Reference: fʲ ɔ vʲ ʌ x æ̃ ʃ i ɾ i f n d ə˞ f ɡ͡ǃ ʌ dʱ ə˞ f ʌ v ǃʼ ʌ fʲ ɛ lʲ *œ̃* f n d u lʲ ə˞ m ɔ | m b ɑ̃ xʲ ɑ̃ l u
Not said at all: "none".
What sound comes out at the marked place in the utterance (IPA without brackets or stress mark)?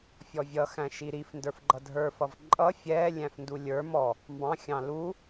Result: æ̃